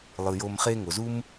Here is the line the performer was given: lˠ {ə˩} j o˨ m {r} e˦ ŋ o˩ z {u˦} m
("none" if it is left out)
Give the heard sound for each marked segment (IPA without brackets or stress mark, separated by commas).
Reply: ɯ˩, χ, u˥